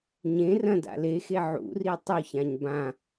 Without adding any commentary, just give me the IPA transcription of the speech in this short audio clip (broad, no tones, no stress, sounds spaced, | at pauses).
ɲ ẽ r ɐ̃ d a̰ l e x e ʕ ṵ r i tˤ u ç ã ɲ b ã